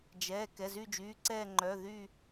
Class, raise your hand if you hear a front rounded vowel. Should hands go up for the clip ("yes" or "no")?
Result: yes